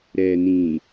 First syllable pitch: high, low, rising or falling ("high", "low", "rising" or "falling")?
low